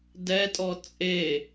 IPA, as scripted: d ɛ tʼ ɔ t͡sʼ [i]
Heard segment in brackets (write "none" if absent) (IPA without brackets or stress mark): e